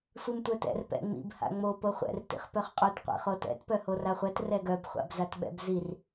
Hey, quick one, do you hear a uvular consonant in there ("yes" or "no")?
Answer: yes